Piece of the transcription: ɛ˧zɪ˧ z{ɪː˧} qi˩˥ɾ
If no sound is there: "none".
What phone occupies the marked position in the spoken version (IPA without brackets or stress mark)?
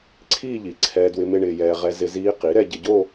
iː˧